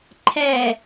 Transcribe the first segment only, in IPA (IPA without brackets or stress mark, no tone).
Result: ǃʰ